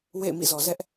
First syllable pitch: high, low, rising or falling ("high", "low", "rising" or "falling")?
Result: falling